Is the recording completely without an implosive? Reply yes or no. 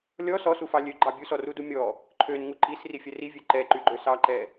yes